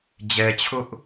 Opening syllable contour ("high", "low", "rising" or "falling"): low